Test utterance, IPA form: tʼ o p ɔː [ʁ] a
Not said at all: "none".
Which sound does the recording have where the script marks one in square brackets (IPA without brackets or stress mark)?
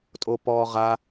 ʁ